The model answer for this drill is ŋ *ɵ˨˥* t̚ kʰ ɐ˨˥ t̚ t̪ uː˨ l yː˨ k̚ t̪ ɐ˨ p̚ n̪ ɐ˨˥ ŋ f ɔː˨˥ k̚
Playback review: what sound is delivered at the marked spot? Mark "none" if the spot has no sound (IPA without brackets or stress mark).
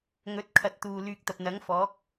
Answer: ɵ˨˥